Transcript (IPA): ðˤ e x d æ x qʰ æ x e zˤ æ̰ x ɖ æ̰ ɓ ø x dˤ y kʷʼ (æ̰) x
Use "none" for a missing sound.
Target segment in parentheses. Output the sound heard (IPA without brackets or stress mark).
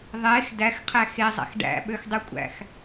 æ̰